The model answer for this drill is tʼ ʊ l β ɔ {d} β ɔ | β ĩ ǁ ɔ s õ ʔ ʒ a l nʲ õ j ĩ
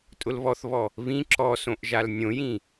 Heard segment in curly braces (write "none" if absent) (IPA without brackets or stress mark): θ